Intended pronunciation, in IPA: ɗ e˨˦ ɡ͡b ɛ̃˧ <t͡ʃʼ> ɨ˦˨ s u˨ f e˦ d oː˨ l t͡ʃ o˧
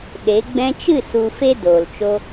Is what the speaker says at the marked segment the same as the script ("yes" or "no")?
no